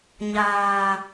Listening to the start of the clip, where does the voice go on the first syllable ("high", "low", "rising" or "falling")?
low